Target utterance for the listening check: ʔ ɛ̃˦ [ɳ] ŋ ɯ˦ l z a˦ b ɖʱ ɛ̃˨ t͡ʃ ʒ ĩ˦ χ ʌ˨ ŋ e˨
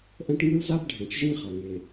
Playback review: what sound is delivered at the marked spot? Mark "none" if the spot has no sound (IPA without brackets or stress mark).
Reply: ʈ